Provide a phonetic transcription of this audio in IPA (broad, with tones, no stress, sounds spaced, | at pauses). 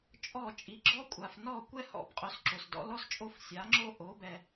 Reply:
t͡ʃʼ ɔ˥˩ t͡ʃʼ i˩˥ ɡ͡ǁ ɔ˥ kʷʼ a˩ f n ɔ˥˩ kʷ ɛ˥ h ɔ̰˩ b qʼ o˧ s ǁ o˩ s d ɔ̰˩˥ l ɔ˥ s t͡ʃʼ o˥ f sʲ a˩˥ ŋ͡ǁ o˥ ʔ o˩˥ b ɛ˩